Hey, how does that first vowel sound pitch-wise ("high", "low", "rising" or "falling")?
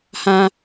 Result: high